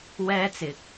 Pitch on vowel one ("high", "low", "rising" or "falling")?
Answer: high